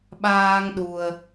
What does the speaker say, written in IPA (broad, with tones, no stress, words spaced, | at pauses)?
ɓaː˧ŋ ɗu˧ə̯